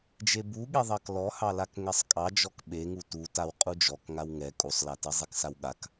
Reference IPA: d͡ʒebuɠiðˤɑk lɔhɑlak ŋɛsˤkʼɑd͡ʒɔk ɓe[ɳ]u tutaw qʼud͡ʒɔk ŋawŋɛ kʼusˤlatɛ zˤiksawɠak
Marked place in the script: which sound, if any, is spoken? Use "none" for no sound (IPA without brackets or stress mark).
ŋ